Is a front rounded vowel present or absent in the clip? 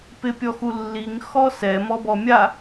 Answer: absent